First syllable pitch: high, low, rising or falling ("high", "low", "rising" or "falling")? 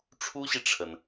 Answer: high